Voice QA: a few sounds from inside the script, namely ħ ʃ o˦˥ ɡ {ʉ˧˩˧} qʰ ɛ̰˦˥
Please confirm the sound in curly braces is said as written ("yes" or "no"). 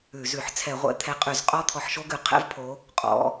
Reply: yes